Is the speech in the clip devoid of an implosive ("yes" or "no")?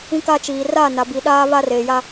no